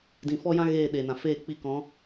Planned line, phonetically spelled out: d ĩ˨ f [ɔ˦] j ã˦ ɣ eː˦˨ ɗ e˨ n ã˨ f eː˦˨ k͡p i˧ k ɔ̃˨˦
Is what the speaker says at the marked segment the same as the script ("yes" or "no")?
yes